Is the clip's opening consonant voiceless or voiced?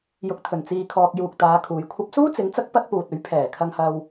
voiced